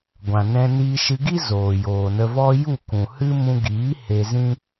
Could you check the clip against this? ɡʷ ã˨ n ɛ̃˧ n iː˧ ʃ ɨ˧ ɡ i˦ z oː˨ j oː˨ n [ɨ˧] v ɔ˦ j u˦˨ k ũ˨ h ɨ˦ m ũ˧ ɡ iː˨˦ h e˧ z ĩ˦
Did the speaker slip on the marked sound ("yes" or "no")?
yes